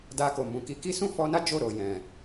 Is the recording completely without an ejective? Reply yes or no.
yes